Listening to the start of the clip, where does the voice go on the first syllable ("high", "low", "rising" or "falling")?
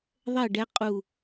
falling